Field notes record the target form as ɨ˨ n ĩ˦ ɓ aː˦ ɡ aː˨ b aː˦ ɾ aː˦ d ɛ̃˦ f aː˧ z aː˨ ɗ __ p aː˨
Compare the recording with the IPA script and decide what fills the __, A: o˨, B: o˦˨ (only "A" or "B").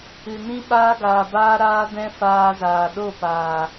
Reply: B